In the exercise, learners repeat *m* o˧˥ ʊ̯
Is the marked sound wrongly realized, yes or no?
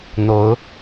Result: yes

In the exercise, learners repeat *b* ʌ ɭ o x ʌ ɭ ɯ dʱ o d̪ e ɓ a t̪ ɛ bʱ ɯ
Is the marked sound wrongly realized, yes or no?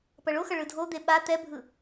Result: yes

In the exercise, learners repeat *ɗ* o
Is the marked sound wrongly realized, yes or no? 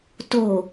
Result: yes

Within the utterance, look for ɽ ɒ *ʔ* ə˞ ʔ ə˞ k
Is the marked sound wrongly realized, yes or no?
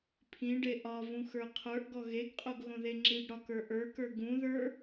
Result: yes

